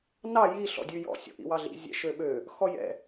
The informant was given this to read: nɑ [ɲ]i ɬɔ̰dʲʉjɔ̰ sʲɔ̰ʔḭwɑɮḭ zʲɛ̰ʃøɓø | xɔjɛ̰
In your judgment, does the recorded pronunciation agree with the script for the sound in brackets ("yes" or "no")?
no